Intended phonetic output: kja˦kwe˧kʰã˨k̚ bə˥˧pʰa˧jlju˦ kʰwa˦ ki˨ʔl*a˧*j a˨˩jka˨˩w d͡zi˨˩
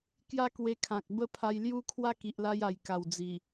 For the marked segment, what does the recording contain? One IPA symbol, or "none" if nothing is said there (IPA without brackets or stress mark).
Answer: a˧